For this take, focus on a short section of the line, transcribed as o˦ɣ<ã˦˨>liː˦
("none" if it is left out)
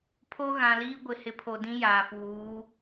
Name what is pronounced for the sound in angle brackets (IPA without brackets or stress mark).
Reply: ã˨